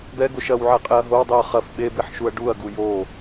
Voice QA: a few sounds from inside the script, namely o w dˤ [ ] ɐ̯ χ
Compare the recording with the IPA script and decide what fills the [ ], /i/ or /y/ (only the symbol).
i